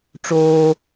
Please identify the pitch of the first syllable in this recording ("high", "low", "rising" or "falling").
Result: high